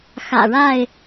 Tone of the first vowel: low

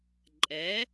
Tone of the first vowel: rising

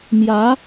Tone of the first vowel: rising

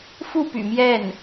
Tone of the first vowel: falling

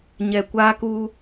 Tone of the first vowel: low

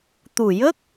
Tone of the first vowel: low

